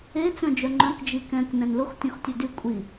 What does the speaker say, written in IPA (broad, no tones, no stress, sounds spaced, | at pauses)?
e t͡s œ̃ d͡ʒ œ ŋ͡ǃ œ̃ k d͡ʒ i k ɛ̃ k n ɛ̃ n l ʊ x tʲ ɔ̃ x tʲ œ d y kʷʼ i